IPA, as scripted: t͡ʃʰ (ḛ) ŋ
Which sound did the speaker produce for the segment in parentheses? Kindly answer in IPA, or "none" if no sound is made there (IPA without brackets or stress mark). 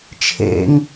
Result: ḛ